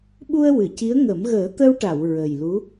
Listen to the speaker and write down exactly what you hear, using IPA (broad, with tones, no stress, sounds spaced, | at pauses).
ɓ u˧ ə̯ w ɨ˨˩˨ c i˧˥ ə̯ ŋ ə˨˩˦ m ɣ əː˨˩˦ t̪ ə˧ w ʈ a˨˩˨ w ɹ ə˨˩ j l u˧˥